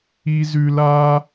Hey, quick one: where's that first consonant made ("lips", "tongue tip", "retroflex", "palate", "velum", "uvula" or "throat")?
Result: tongue tip